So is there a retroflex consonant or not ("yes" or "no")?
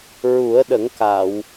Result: no